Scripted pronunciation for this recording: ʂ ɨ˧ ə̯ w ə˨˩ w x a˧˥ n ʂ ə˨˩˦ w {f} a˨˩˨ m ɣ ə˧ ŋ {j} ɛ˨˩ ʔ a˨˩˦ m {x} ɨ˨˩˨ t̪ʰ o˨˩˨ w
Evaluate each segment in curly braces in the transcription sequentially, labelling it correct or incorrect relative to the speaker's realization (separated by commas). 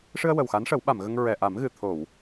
incorrect, incorrect, incorrect